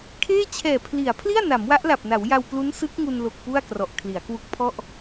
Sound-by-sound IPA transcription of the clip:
kʰ eː˥˩ t͡ɕʰ ɛː˨˩ pʰ l i˩˦ a̯ pʰ l i˥˩ a̯ n a˩˦ m w a˦˥ ʔ l a˨˩ p̚ n a˩˦ w j a˧ w p l u˦˥ n s ɯ˦˥ k̚ ŋ u˧ n l o˨˩ k̚ p u˥˩ a̯ k r ɔ˨˩ ʔ kʰ l i˩˦ a̯ k w u˦˥ k̚ pʰ ɔ˥˩ ʔ

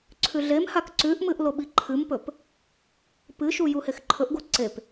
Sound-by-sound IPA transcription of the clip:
ǀʰ ʉ ɮ e m h a k ǀ ʉ ʔ m ɨ ʔ l o ɓ i ǃʰ ɨ m p ɵ p | p ɨ ʃ u j u h e x ǃʰ ɵ ʔ ɡ o ǀ e p

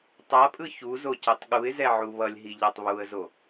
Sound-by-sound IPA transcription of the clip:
tˤ a pʼ ɯ ç u z o c ɛ tˤ ɠ u ɪ̯ z ɛ ʕ u β ʌ lʲ ɦ i ʎ a tˤ β u ə̯ z o

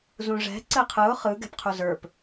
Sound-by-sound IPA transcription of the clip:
z ũ ʐ ɛ̤ ǀ ɘ qʰ ɯ ʊ̯ χ ɯ ɡ ɛ̤ p qʰ u z ə˞ p

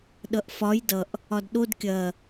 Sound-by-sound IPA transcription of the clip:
ɗ ʌ ʔ f ɒ j d ʌ ʔ | ɒ d ɗ o d kʲ ɐ

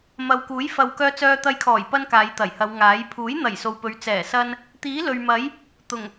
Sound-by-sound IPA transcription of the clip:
m ɐ˨ w k uː˨˥ j f ɐ˨ w k œː˧ t͡s œː˧ t̪ ɐ˧ j kʰ ɔː˨˩ j p ɐ˥ n k aː˨˧ j t̪ ɐ˨˩ j h ɐ˨˧ w ŋ aː˨˥ j pʰ uː˨˥ j n̪ ɐ˨˩ j s o˨ w p ɵ˨˧ ɥ t͡s ɛː˨˩ s ɐ˥ n | t̪ iː˨˥ l ɵ˨ ɥ m ɐ˨˥ j | t̪ ʊ˨˩ ŋ

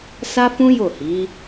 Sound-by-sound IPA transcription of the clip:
s a˦ f ũ˦ j o˦˨ h i˨˦

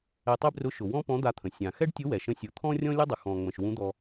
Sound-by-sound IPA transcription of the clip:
ɛ˧ tˤ e˥ b r ʊ˧˥ ʃ ʊ˩ w ɔ̃˥ p ɔ̃˧˥ d̪ a˧ t̪ʰ ə̃˩ sʲ ã˩ x ɛ˥ ɖ tʲ ʊ˧˥ w ɛ˩ ʃ ə̃˧ sʲ ʊ˩˧ t̪ʰ ɔ̃˥ rʲ ɔ̃˥ lʲ ʊ˥ dˤ ə˩ x ɔ̃˩ ŋ͡m ə̃˩ ʃ w ũ˧˥ d̪ ɔ˧

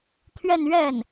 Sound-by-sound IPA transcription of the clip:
t̪ʰ ɥ ɛ˥˧ n ɥ ɛ˥˩ n

